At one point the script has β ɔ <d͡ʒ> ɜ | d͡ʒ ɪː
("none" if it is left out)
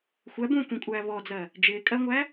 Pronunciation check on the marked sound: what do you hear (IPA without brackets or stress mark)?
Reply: d͡z